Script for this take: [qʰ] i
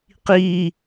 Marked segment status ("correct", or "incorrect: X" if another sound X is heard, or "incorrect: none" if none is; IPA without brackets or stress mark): incorrect: q